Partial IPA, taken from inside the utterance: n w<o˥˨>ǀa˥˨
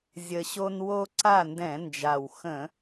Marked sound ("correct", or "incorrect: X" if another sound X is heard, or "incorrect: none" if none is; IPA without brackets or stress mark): incorrect: o˦